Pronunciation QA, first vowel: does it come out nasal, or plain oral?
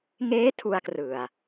oral